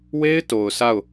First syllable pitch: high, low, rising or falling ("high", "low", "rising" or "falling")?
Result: high